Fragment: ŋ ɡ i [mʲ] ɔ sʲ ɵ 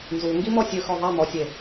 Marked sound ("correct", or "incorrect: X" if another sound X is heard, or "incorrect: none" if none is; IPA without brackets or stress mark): incorrect: m